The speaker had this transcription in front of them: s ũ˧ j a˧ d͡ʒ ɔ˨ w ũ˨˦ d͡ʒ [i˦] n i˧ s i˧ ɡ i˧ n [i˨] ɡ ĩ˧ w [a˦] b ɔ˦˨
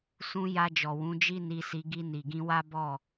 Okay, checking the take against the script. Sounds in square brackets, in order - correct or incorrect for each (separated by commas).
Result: correct, correct, correct